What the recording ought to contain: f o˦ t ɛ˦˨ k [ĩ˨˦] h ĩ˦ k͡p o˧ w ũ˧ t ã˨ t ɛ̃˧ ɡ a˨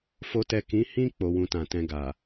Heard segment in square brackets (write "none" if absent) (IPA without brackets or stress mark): ĩ˨˦